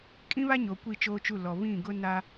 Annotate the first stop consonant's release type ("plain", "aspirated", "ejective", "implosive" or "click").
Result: ejective